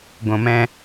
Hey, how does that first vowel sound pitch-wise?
low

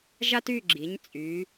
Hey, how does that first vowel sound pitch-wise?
high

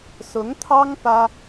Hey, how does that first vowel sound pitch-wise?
rising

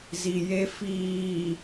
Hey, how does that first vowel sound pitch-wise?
low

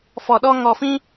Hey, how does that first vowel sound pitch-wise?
low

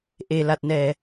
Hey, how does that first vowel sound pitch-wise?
low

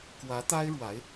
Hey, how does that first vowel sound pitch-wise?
rising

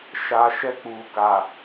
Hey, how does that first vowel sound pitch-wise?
low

